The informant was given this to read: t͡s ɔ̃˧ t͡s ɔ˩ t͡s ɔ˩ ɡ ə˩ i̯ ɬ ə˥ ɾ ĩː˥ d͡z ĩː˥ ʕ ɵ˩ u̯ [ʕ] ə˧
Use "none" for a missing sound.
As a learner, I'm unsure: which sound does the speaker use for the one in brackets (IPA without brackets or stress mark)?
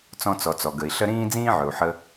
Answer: ħ